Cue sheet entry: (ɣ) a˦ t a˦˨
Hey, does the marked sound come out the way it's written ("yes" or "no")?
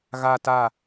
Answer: yes